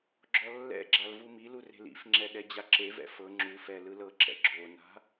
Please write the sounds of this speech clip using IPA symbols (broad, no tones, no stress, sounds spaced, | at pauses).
ɡ͡ǁ ɔ lː ɛ̰ ɡ͡ǁ a l v u m i l u r e̤ l ḭ f ŋ͡ǁ ɛ ɗ ɛ d͡ʑ a ǁ e v ɛ̰ f ɤ ŋ͡ǁ u f ɛ l ɯ l ɤ ǁ ɛ̰ ɡ͡ǁ o n a̤